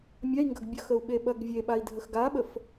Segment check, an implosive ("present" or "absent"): present